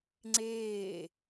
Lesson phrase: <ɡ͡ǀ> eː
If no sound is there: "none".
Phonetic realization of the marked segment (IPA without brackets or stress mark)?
ŋ͡ǀ